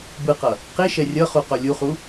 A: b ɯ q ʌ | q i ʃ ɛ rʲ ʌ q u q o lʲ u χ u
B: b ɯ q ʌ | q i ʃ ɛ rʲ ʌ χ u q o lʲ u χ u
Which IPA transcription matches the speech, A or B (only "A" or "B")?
B